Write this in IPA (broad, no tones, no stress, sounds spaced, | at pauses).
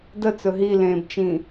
d ə t͡s ɵ ɦ i l ẽː b t͡ʃ ĩ